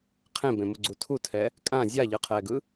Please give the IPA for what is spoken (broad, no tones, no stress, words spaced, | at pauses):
qʰẽbẽmuɡ͡ǀu tʰutʰɛ | kʼã zʲaʎɯqʰɛːɡɯ